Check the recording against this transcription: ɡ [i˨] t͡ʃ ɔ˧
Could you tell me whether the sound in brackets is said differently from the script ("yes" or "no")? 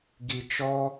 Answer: no